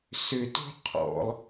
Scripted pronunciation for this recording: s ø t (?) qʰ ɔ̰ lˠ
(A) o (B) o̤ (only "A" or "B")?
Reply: B